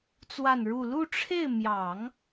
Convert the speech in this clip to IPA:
t͡swa˥˧nɻu˥˧ lu˥˧ʈ͡ʂʰe˥˩ɪ̯mjɑ˨˩˦ŋ

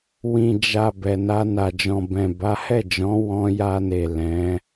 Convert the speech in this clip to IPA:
wĩ˨ d͡ʒa˨ bɛ˨na˧na˨ d͡ʒɔ̃˨bɛ̃˨ ba˨˦hɛ˦˨d͡ʒɔ̃˨˦ wɔ̃˧ja˧ne˨ lɛ̃˨˦

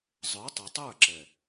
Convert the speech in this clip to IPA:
zˤə˞˨˦tˤo˨ tˤə˞˦˨ǁɛ˨

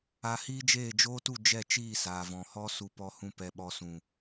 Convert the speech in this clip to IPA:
a˧ hiː˦d͡ʒeː˦˨d͡ʒoː˦tu˦˨ d͡ʒɛ˦˨t͡ʃiː˦˨ saː˨vɔ̃˨ hɔ˦ su˧pɔ˧hũ˧ pɛ˨ɓɔ˨sũ˨

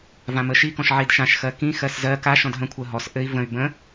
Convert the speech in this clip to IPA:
vãməʃikɔ̃ʃ ʕidʃãʃxɜ kĩ xɜszɜ ka ʃɔ̃dɦə̃kʷʰɜ ɦɔs ʔɘi̯ və̃y̯ bə̃

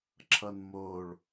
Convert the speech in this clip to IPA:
ǁʰʌnmoɭ

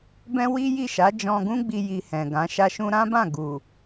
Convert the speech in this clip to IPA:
bɛ̃˦wi˦ji˦˨ ʃa˨˦d͡ʒɔ̃˧ɡũ˦ɡ͡bi˧ ji˧hɛ̃˨ɡã˨˦ ʃa˧ʃũ˧ɾã˦bã˦˨ ɡu˨

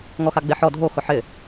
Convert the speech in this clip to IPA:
ŋɔxaɡ͡beħɔ dʱo xʊħɪ

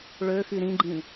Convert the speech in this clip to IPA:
ɭø xyɾĩɡ͡ǃĩ

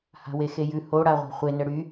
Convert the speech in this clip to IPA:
ha̤wexejʉ hoɽaʁʷa̤ χʷenə ɽy

